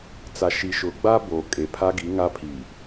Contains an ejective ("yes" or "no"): yes